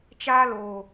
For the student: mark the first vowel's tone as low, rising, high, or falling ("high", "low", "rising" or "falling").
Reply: high